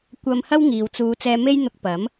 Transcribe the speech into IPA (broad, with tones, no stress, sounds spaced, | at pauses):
kʷ ɐ˧ m h ɐ˥ w ŋ iː˨ w t͡s uː˨˧ t͡s ɛː˧ m e˥ j n̪ ʊ˧ k̚ p ɐ˨˥ m